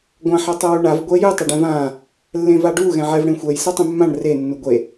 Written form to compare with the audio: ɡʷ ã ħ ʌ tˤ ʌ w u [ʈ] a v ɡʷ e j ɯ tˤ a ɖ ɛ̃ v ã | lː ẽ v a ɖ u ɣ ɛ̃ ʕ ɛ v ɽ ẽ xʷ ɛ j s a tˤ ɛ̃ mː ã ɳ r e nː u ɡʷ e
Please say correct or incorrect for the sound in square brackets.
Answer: incorrect